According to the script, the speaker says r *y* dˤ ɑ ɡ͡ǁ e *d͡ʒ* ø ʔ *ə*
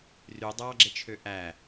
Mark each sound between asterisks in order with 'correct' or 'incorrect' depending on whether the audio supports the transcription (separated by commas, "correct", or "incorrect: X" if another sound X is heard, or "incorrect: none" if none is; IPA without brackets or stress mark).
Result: correct, incorrect: t͡ʃʰ, incorrect: æ